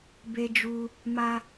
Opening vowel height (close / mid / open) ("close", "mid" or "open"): mid